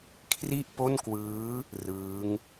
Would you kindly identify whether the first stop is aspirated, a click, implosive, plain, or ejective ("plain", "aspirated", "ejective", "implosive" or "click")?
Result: aspirated